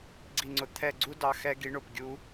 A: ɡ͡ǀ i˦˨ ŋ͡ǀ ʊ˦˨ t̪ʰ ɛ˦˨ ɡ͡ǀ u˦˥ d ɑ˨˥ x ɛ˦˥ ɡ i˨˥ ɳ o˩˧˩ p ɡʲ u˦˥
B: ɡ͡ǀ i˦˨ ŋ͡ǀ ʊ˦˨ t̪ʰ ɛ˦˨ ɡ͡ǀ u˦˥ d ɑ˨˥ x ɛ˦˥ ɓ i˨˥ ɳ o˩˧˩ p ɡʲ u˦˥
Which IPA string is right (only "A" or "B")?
A